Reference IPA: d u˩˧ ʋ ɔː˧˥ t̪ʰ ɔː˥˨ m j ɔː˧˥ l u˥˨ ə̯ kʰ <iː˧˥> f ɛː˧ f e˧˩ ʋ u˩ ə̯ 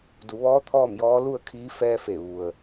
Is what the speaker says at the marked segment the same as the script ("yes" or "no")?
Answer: yes